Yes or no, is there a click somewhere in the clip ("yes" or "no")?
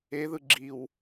yes